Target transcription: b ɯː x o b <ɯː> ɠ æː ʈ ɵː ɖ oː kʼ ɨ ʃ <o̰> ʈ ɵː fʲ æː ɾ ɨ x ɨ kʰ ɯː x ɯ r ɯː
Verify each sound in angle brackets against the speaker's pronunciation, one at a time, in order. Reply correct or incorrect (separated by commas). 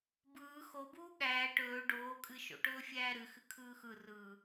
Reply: incorrect, correct